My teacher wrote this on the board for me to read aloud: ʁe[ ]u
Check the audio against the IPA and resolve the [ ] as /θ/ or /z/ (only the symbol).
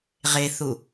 θ